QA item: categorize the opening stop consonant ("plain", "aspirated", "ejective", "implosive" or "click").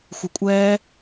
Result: ejective